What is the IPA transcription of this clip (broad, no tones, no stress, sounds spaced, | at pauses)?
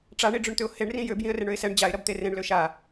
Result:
ʈ͡ʂ a ɳ i ɖ͡ʐ ʏ ɳ t̪ ʏ ʊ̯ h e ɳ r ĩ j ø b j ĩ ə̯ r e ɳ ø ɪ̯ s ɛ ɳ d͡ʑ a ɪ̯ ɾ ɐ b t̪ e r ẽ ɳ l ø ʃ a